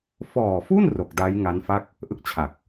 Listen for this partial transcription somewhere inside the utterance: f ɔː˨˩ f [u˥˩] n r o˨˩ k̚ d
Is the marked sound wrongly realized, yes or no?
no